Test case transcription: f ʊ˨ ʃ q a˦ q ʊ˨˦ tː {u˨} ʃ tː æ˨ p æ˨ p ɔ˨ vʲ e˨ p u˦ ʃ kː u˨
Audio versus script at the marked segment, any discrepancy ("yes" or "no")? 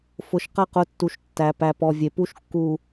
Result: no